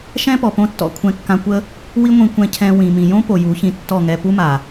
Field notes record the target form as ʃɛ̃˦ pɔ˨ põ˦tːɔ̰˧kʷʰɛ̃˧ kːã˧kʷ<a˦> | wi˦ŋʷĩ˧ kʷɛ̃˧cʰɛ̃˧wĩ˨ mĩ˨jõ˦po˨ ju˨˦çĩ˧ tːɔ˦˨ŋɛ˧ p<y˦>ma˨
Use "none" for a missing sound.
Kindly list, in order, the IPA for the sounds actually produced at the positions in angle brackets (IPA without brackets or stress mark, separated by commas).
ə˦, u˦